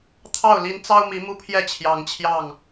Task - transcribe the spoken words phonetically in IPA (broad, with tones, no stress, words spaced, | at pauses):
t̪ʰɑ˥˨ʊ̯ li˨˦nt͡sɑ˦ʊ̯ mi˨˦mu˦pʰjɛ˥˨ t͡ɕʰjɑ˨˦ŋt͡ɕʰjɑ˥˨ŋ